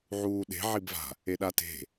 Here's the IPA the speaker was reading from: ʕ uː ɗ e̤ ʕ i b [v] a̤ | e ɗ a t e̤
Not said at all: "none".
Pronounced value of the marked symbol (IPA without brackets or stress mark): v